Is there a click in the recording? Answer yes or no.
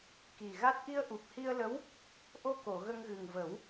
no